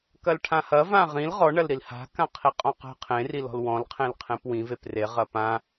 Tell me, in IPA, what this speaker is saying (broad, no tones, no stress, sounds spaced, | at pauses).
k ɐ l ʈʰ ã h ɐ v ã ʁ ĩ l ʁ ɔ ɳ ɐ l ɾ i l h a̤ k ã qʰ i qʼ ɔ̃ q a̤ qʰ ẽ r i l ɔ̤ l w ɔ̃ l qʰ ẽ l qʰ ẽ p w ĩ v e p r e ʁ ɐ p ã